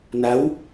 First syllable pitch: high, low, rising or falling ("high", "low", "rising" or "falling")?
rising